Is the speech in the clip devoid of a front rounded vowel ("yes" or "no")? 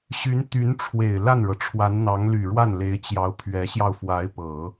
no